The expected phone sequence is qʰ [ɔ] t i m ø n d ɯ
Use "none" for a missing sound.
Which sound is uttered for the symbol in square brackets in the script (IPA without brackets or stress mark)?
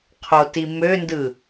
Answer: o